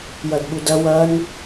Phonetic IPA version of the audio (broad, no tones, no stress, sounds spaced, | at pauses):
j ɐ d ɓ u d ɐ w ɐ n